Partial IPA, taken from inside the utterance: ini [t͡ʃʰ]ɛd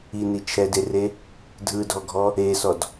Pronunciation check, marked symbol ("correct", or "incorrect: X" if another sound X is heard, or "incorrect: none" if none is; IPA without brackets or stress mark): correct